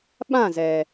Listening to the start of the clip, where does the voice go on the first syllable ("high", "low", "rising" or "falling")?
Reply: falling